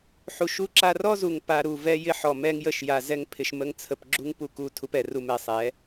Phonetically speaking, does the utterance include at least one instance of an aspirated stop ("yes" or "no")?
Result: yes